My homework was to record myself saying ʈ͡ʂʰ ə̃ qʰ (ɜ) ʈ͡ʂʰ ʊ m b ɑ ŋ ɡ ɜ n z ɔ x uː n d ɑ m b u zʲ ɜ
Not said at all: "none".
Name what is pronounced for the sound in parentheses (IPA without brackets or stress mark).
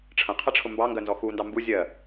ɛ